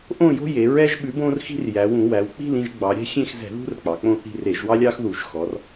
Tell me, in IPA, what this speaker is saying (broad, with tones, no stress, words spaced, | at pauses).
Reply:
ʔõ˦˨jo̤˦je˩˧ ɹɛ˦ʒɓʉ˨˥bõ˦r xi̤˦rjæ˩˧wũ˧˩˧ wæ˩˧wk͡pi̤˦˨lĩ˦˨ʒɡ͡bɑ˩˧ ɾʲɛ̤˦xʲẽ˦˨xzɛ̤˧˩˧ðṳ˦r k͡pɑ˩˧k͡põ˦˨θi̤˦˨r e˧˩˧ʒwɑ˦lʲɑ˦xðu˧˩˧ʒ xɔ˩˧r